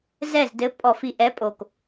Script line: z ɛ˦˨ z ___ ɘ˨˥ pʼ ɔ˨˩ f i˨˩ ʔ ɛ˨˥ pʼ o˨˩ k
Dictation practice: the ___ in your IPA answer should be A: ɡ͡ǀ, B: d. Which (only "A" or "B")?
B